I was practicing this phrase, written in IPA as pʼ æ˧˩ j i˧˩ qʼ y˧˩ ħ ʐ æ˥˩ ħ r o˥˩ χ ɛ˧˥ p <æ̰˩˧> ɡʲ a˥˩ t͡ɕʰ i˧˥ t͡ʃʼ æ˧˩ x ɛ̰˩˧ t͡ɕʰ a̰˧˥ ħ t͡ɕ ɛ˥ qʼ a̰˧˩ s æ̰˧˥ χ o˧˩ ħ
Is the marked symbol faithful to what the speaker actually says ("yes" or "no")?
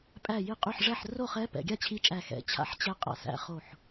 no